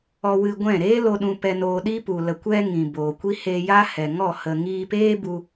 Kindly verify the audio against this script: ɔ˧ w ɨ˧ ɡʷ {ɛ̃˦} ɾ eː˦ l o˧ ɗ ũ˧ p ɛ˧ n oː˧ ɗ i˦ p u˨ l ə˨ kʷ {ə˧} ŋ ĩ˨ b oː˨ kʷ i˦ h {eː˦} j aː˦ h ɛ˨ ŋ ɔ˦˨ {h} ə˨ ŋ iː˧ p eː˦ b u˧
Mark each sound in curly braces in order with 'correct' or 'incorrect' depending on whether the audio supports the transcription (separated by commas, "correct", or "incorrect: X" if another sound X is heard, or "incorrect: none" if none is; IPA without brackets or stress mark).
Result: incorrect: ɛ̃˦˨, incorrect: ɛ˧, incorrect: eː˧, correct